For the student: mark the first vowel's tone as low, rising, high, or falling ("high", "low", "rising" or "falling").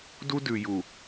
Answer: high